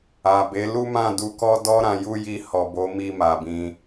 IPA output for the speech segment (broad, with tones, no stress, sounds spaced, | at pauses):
a˨ b e˨˦ l u˦ m ã˦˨ d u˧ k ɔ˦ d ɔ˦ ɾ ã˧ j u˦ j i˧ h ɔ˨ b o˨˦ m i˧ m a˨ b ĩ˧